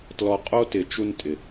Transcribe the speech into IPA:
t l ɔ˧ qʼ o˦ t ɪ˨˦ t͡ʃ u˧ n tʼ ɪ˨

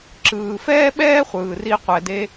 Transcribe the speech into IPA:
ǁ ɯː˩ f ɛː˥ ɓ ɛː˥ χʷ ɯː˩ r i˧ qʷ ɛ˩ d e˧

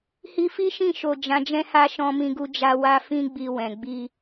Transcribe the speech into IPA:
h i˧ f i˦ ʃ ĩ˦˨ ʃ o˨ d͡ʒ ã˨˦ d͡ʒ ɛ̃˦ h a˦ ʃ ɔ̃˧ m ĩ˧ ɡ u˧ d͡ʒ a˧ w a˦ f ĩ˦ ɡ͡b i˧ w ɛ̃˨ ɡ͡b i˧

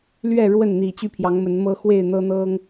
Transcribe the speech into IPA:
l ɥ ɛ˥˨ ɻ w ə˥˨ n n̪ i˨˩ t͡ɕ y˥˨ pʰ j ɑ˨˦ ŋ m ə˨˦ n m ɤ˦ x w e˥˨ ɪ̯ n̪ ɤ˦ n̪ ɤ˦ ŋ

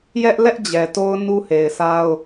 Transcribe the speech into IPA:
j ɛ˦ ʔ l ɛ˦ ʔ d͡ʑ ɛ˨ t o˦ ʊ̯ n u˦ h e˨ ɪ̯ s a˦ ʊ̯

